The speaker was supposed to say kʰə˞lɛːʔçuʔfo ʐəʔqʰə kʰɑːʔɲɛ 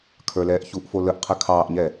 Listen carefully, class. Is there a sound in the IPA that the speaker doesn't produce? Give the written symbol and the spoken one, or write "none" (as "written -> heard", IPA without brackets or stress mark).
ʐ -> l